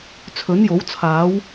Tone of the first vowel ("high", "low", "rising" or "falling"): rising